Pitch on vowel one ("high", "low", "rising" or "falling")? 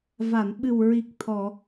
low